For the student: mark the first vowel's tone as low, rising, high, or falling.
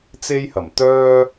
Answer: high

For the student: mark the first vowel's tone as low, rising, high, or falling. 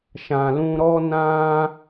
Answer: low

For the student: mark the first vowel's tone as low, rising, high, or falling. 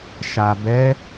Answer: low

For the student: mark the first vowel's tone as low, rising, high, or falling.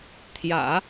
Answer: low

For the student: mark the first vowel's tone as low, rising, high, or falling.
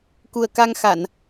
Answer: low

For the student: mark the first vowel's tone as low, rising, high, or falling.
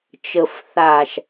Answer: low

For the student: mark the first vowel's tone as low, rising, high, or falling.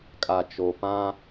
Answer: low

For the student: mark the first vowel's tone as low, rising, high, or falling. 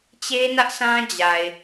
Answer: high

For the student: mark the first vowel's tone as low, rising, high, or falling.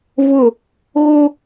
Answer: falling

